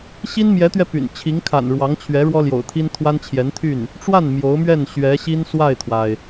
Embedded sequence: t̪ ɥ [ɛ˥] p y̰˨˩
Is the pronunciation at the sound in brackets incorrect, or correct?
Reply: incorrect: ɛ˧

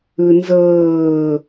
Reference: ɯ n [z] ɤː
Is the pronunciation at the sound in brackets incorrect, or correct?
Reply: correct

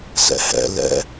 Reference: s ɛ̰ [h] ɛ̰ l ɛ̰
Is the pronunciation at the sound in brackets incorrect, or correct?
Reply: correct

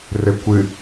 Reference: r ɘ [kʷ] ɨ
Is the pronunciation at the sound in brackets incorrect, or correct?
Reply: correct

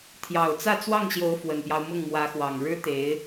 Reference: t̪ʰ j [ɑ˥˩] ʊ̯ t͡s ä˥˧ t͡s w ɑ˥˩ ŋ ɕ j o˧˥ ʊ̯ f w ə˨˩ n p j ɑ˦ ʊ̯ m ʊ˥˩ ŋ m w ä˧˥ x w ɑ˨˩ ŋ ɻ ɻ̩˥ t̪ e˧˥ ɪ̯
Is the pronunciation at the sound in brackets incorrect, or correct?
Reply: incorrect: ɑ˨˩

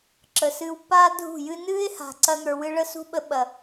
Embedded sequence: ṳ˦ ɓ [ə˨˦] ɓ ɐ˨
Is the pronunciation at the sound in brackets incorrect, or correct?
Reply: incorrect: ə˧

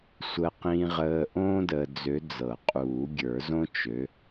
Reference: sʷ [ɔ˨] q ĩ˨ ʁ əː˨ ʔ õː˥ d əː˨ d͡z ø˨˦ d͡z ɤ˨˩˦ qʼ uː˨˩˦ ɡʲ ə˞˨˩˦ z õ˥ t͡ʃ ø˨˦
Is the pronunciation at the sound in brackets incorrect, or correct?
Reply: incorrect: ə˨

